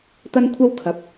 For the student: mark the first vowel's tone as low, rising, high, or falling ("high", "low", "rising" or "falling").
high